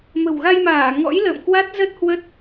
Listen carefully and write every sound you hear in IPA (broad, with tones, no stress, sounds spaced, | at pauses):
m ə̤˨˩ w ɣ a˧ j m aː˧˩ ŋ ɔ̰˧˥ j l ə̰ː˧˨ m k w a˦˥ t̚ z ə˦˥ t̚ h w ə˦˥ t̚